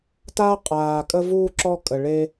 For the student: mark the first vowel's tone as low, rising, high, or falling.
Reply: high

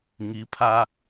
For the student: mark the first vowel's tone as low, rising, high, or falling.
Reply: rising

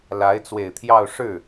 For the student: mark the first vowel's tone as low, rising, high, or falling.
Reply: rising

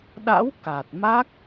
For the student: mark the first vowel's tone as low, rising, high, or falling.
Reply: rising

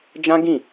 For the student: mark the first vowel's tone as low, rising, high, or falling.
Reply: high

